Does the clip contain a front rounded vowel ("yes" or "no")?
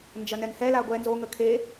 no